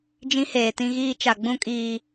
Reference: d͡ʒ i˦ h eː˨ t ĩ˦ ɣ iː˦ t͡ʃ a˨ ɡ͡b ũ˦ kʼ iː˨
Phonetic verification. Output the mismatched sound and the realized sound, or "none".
i˦ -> ĩ˦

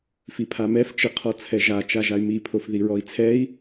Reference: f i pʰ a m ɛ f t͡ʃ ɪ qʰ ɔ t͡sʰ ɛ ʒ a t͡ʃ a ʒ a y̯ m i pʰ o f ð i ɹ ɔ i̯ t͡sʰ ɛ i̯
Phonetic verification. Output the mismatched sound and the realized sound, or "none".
none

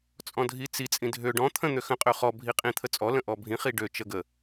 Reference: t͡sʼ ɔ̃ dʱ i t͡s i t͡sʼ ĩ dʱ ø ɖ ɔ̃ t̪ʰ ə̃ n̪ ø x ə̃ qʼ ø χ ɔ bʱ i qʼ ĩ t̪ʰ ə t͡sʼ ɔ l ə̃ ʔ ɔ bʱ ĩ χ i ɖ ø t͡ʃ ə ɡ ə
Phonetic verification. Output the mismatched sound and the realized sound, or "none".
none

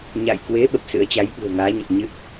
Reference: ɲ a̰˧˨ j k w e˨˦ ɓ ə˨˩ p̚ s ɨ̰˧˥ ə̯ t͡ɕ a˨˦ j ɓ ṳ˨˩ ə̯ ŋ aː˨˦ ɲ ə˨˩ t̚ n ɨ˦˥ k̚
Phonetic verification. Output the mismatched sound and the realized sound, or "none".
n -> ɲ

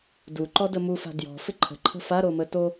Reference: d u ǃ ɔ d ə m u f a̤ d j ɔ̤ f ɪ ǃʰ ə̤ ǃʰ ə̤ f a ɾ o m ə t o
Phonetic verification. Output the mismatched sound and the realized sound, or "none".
none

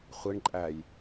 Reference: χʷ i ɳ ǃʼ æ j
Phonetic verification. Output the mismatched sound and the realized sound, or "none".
none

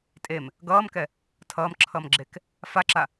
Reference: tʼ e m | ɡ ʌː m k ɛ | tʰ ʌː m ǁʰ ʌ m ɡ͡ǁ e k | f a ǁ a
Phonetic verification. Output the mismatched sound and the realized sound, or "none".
none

